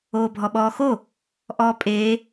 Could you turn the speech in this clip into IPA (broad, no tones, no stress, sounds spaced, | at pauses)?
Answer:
oː bʱ ɔ ɓ ɔː x o | ʔ ɔː pʼ eː